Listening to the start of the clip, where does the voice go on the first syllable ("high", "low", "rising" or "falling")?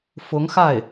rising